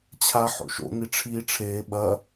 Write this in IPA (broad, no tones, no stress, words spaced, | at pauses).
t͡ɕʰa ħo̰ʃo̰ni ʈ͡ʂʰiːʈ͡ʂʰeː ɓɐ